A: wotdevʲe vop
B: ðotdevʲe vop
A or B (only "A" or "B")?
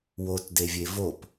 A